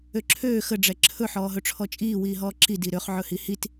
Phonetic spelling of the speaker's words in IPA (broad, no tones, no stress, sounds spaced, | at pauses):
ø ǁʰ øː x ə ɖ͡ʐ ɛ ǁʰ ɵ ħ ɔː ɦ ɵ ʈ͡ʂʰ ɔ t͡ʃʼ iː w iː ɦ ɔː ǁ i d i ɾ ø χ ʕ ɵ h i h i t